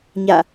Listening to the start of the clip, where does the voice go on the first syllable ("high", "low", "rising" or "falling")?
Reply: falling